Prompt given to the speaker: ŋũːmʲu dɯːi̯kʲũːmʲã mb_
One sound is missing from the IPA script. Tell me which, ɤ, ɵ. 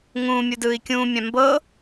ɤ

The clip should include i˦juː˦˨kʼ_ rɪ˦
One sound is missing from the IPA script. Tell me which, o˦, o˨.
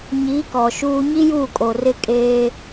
o˨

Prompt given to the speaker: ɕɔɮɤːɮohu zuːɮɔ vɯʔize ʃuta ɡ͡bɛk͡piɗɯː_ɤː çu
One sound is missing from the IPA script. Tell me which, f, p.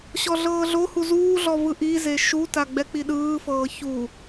f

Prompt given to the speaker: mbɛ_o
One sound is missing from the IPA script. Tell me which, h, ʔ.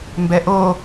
ʔ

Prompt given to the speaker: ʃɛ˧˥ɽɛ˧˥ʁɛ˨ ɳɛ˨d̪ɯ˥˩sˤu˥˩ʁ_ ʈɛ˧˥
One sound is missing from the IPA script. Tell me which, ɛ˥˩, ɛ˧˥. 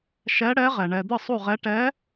ɛ˧˥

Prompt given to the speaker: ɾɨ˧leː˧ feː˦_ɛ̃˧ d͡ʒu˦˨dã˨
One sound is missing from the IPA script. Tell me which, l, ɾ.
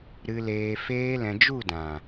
l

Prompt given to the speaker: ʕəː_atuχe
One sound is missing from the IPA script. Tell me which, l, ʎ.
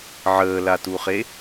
l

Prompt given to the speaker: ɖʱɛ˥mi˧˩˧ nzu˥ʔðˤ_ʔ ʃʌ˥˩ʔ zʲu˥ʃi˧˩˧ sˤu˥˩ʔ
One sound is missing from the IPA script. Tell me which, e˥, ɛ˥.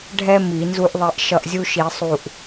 e˥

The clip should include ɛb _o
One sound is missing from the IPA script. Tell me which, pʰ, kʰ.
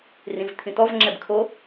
kʰ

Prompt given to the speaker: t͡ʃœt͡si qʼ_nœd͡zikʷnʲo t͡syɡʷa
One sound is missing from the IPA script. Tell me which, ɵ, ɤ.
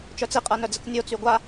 ɤ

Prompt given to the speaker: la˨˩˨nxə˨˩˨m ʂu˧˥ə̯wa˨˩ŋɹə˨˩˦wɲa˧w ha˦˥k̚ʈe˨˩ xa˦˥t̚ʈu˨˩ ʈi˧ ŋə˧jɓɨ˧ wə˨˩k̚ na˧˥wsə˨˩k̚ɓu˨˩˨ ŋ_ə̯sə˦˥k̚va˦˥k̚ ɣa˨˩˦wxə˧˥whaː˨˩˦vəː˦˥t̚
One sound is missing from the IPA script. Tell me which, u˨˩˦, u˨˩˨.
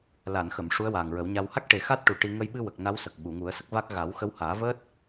u˨˩˦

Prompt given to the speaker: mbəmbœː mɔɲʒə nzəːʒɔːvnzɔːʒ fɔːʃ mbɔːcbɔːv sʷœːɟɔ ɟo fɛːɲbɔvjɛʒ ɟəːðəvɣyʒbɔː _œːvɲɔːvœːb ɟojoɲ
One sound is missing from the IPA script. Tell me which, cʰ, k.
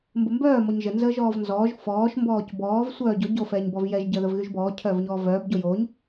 cʰ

